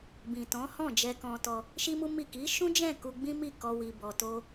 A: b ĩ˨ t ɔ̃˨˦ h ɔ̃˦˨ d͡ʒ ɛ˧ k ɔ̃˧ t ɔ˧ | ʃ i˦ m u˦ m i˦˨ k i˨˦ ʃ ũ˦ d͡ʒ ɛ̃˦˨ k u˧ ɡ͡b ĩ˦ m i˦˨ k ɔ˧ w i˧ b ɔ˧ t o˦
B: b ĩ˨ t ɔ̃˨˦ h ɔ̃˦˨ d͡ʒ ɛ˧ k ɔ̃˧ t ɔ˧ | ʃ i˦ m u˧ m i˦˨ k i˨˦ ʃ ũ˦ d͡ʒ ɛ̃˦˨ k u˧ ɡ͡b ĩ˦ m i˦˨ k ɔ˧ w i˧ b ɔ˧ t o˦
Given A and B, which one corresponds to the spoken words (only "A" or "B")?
A